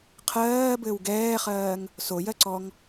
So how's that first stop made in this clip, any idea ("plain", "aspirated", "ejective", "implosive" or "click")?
aspirated